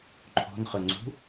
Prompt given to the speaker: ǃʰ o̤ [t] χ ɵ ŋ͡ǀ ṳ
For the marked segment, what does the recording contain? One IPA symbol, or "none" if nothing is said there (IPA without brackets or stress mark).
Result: n